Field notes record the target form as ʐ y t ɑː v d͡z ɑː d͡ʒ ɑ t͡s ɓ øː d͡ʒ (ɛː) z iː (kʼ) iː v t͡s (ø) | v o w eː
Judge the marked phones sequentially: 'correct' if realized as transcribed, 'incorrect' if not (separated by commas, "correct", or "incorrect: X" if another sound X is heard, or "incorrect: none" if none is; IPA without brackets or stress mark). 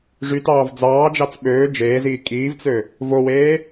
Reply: incorrect: eː, correct, correct